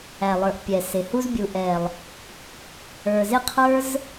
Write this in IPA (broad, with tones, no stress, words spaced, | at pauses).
æ˨lˠə˞˨ʔpʲɛ˨ sɪ˨hu˦z bʲu˨ʔɛ˨lˠ | ə˞˨zɪ˦˨qʰə˞˦z